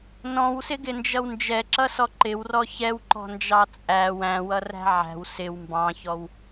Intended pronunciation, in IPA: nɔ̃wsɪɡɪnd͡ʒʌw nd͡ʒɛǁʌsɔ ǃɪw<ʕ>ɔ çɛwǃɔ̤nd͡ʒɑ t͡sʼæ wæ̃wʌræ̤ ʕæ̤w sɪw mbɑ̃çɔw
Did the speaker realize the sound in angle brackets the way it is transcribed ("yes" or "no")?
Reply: no